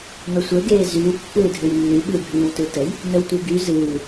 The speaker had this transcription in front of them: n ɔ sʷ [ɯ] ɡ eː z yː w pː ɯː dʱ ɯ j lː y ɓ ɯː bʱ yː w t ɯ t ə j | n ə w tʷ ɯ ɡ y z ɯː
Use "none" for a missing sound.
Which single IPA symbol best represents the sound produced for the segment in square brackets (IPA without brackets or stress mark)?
ə